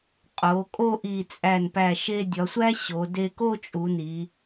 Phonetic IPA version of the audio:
qʼ o˩˧ kʼ o˥˧ ʔ i˧˩ t͡sʼ æ˧˩ n p æ˧˩ ʃ e˧ dʲ ɒ˩˧ sʷ æ˥ ɕ o˩˧ d e˧ k o˥˧ t͡ʃʼ u˩˧ n i˩˧

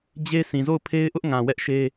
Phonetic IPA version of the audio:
d͡ʑ e˦ sʰ ĩ˨ z o˦˨ ʊ̯ pʰ e˦ ɪ̯ ʔ ʊ˦ ʔ ŋ ã˨ w ɛ˦ ʔ ʃ e˦

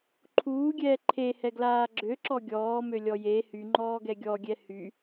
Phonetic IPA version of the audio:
ǃʰ uː ɡʲ ɛː ǃʰ e h ɛ ɡ l aː ɡ͡ǁ ø ǁ ɔ ɡʲ ɔː m ø lʲ ɔ j e h y ŋ͡ǃ ɔː ɡ ɛ ɡʲ ɔ ɡʲ ɛ h y

